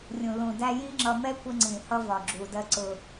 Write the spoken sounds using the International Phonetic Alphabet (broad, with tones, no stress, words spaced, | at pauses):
rʲũ˨ lũ˨dæ˧jĩ˦ŋ͡ǁʌ˧ mɛ˦kʷɪ˧ŋ͡ǀĩ˨hʌ˧ vɒ˨ɡ͡ǁu˨dɜ˧ ǀʊ˧